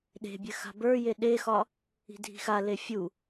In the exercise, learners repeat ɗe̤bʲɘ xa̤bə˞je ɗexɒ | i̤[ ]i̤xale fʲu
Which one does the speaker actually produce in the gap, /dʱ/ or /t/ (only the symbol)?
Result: dʱ